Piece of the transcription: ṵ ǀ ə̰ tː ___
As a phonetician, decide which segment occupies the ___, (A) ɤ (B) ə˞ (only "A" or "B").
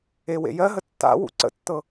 A